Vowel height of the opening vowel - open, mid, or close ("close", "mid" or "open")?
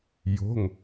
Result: mid